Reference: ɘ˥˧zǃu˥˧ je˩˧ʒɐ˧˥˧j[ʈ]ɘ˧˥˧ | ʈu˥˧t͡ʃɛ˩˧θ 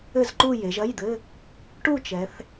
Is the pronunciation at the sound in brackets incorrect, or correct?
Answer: incorrect